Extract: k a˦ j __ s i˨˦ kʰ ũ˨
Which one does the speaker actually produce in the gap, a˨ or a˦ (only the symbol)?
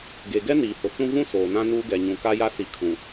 a˦